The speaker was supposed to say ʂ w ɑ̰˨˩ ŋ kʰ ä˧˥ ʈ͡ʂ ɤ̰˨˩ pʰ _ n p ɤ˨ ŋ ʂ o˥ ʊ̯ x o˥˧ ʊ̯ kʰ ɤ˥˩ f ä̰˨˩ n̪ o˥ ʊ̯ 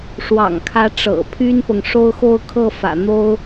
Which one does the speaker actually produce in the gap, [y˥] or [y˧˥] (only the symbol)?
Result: y˥